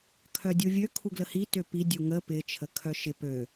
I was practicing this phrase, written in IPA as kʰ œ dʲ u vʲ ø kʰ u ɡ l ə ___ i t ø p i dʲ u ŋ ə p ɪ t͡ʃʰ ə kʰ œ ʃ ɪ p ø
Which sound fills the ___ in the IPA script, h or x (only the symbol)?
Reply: h